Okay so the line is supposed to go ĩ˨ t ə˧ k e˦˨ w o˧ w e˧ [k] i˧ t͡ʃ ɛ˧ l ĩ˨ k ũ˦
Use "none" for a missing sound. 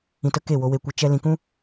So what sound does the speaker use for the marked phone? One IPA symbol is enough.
kʷ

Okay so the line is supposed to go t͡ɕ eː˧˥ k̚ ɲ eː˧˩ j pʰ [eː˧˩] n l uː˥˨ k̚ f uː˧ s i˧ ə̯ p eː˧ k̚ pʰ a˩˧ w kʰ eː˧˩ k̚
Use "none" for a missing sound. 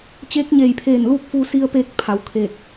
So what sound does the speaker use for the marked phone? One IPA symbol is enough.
eː˧˩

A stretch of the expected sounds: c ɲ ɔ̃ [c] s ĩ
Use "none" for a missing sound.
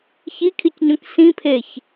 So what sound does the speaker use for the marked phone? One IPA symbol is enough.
k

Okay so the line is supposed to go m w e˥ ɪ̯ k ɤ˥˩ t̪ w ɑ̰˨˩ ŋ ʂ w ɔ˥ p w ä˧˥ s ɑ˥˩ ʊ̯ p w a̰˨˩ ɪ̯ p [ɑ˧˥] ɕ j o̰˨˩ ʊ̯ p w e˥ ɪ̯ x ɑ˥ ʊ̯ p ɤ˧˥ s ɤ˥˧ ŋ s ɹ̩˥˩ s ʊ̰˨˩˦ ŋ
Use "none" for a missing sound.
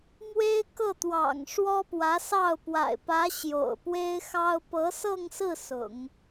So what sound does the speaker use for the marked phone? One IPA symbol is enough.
ä˧˥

